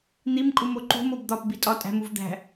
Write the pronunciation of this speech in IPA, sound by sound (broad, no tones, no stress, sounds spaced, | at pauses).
n̪ i m kʼ u m o ǃ ṳ m o b d̪ ɒ p b i tʼ ɒ tʼ æ̤ m u v d̪ æ̤